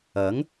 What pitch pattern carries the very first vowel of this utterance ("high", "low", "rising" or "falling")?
rising